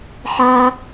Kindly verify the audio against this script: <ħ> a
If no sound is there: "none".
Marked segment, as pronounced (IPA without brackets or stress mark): ħ